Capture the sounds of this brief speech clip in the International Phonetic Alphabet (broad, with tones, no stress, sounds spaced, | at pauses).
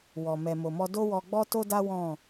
w ɔ˨ m ɛ˨ m o˨ m ɔ˧ d o˦ w ɔ˧ ɡ͡b ɔ˦ t o˦ d a˦ w ɔ̃˦˨